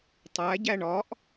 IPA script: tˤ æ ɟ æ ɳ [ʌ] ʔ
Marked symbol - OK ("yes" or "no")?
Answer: no